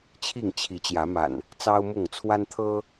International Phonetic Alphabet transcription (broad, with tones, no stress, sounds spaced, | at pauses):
t͡ɕʰ i˥˨ ŋ t͡ɕʰ i˨˦ t͡ɕ j ä˨˦ m a̰˨˩ n | t͡s ɑ˦ ʊ̯ m ʊ˥˨ ŋ t͡sʰ w a˦ n t̪ʰ ɤ˦